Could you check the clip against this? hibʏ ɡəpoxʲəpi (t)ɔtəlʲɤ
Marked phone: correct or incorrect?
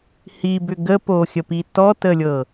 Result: correct